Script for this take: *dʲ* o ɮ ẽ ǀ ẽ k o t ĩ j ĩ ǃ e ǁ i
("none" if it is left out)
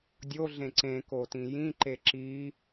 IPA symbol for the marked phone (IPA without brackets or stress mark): dʲ